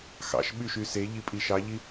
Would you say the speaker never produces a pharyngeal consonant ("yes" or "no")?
yes